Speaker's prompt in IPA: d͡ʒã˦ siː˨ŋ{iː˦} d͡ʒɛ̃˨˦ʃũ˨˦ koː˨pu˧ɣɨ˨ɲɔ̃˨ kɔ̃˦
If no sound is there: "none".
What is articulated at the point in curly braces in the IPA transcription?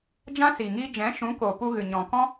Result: iː˦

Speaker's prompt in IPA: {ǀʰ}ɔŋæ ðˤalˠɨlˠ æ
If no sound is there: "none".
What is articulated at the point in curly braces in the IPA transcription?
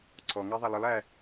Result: ǀʰ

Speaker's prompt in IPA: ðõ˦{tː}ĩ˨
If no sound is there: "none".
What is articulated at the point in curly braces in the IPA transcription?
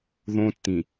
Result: tː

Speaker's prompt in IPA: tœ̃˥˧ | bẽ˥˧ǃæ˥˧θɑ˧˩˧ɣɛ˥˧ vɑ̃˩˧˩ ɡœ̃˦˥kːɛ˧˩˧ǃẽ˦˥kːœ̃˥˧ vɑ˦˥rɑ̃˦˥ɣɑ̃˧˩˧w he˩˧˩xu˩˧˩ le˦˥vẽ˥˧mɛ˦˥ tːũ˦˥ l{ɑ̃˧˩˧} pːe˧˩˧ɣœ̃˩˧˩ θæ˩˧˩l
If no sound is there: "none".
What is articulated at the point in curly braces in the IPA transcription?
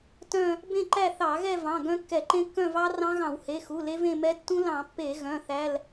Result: ɑ̃˧˩˧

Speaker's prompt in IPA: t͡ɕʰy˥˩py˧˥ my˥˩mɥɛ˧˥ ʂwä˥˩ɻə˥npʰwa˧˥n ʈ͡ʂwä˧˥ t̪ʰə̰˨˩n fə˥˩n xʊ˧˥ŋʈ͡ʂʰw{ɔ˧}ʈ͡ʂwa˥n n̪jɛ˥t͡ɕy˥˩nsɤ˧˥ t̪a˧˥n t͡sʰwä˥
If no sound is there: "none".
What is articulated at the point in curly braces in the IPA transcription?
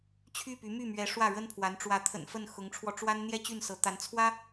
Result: ɔ˧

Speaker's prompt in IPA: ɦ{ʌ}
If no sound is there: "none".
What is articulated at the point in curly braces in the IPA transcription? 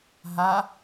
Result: a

